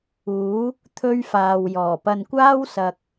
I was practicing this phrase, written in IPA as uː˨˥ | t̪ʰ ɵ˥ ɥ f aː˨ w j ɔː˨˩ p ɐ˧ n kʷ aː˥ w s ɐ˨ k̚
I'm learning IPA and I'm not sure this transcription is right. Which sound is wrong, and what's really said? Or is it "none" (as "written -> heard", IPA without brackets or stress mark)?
none